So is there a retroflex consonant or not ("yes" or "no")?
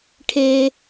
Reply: yes